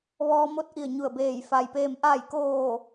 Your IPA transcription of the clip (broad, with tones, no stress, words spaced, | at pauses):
ʋɔː˧mo˥˨t̚ʔi˧˩ə̯ ɲu˧˩ə̯beː˧˩j fa˩jpeː˧˩m ʔa˧˩jkoː˧˩